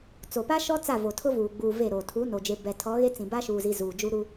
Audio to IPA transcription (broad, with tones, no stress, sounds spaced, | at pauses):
t͡s o˨ p a˦ ʃ ɔ˦ t͡s a˦˨ v o˨ tʰ ʊ˦ v uː˨ ɡ͡b uː˨ v e˦˨ ɾ o˨ tʰ uː˨˦ n o˨ d͡ʒ e˨ b ɛ˨ tʰ ɔ˨˦ ɣ e˦ t͡s ĩ˨ b a˦ ʃ uː˨ z i˨ z uː˨ d͡ʒ u˦ ɾ u˦